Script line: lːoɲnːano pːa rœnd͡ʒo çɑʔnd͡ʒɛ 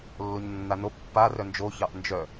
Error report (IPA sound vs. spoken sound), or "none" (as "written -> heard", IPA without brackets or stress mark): ɛ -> œ